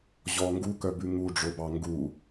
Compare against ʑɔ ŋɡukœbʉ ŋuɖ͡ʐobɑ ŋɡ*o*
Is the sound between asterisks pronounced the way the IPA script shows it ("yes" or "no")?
no